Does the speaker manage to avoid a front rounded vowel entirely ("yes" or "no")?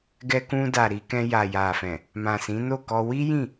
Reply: yes